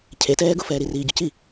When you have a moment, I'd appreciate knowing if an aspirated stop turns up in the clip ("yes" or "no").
yes